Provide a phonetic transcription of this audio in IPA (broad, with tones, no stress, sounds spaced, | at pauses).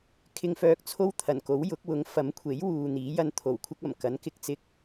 kʰ ɪ˧ ŋ f œː˧ k̚ t͡sʰ o˥ w t̪ʰ ɐ˨˩ n k o˨˥ w j ʊ˨˥ k̚ w ʊ˨˥ ŋ f ɐ˨˥ m kʷʰ e˨˥ j w uː˨ n̪ iː˨˥ j ɐ˧ n t̪ʰ o˨˩ w kʷʰ ɐ˥ k̚ ɐ˨˩ m k ɐ˨˥ n k ɪ˨˥ k̚ t͡s ɪ˧ k̚